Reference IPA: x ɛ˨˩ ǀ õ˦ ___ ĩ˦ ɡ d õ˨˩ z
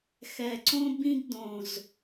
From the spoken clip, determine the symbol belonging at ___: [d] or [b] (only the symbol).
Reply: b